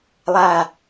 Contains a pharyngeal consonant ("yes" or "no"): no